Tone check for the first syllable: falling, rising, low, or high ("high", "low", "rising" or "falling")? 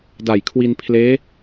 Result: low